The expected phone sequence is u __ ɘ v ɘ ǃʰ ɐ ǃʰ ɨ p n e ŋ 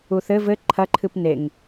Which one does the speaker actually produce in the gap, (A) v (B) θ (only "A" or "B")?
B